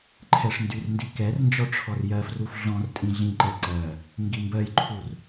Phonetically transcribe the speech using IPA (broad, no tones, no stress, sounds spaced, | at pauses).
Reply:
ǃʰ ɛ ʂ n d y r n d i k ɛ r n d͡ʒ ɔ ʈ͡ʂʰ ɔ r j ɜ f r u f ɮ ɔ̃ r tʼ ĩ ɮ ĩ ǃ ɛ ǀ ɜ | ŋ ɡ i m b ɜ j ǃʰ u r